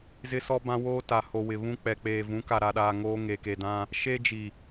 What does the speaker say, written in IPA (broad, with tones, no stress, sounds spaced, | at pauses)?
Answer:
z ɪ˦ s ɔ˦ b ã˦ w oː˦ t a˨ h o˨ w ɪ˨ β ũ˦ k͡p ɛ˨ k͡p eː˨ v ũ˨˦ k a˨ ɾ a˨ ɗ aː˨ ŋ oː˦ ŋ e˨ k e˨ d ã˦ | ʃ e˦ d͡ʒ i˨